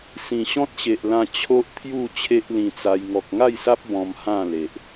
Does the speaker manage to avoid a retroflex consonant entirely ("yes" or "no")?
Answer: yes